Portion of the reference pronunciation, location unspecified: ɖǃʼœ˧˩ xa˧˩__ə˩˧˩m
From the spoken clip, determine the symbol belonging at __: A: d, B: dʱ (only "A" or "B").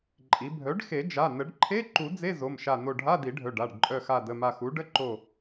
A